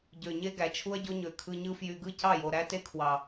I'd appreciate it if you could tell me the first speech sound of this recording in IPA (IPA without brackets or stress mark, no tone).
ɟ